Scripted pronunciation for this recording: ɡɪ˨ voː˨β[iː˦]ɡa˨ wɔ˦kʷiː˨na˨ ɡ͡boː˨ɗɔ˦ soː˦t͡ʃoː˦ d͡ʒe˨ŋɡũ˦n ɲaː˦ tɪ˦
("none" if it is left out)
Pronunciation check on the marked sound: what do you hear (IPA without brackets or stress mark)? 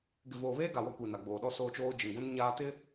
eː˦